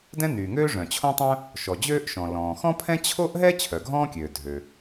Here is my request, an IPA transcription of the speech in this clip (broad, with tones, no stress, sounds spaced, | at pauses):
d ɛ̃˥ n yː˩ ŋ øː˥ ʐ œ̃˩ t͡ɕʰ õ˥ tˤ œ̃˥ | ʃ ɔ˩ d͡ʑ øː˥ ʔ ʃ ɔ̃˩ l ɔ̃ː˩ x ɔ̃˥ pʰ ɛ̃˥ t͡ɕʰ o˥ ʔ ɦ ɛ˥ t͡ɕʰ œ˩ ɡʱ ɔ̃ː˥ kʲ øː˩ dʱ ø˩